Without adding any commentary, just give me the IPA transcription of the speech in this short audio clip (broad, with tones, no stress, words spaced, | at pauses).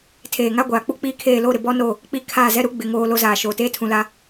tʰeː˨ŋa˦ɡʷaː˨k͡pu˦ k͡piː˦kʰeː˦˨ lo˦˨ɾɪ˨ bɔ˦no˦˨ | k͡pi˦˨ kʰaː˦˨zɛ˦ɾu˦ ɡ͡bɪ˨ŋoː˨ lo˦zaː˨ ʃoː˨ teː˦tʰũ˨la˦